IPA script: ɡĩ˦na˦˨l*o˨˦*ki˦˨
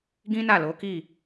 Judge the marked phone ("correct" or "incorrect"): correct